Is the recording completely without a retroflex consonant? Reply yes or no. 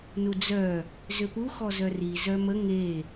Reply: yes